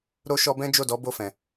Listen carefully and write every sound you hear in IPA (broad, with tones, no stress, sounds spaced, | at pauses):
ɾ o˧ ʃ ɔ˧ b ɛ̃˦ d͡ʒ o˦˨ d ɔ˨˦ b o˦˨ f ɛ̃˨